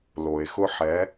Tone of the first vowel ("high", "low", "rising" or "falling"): low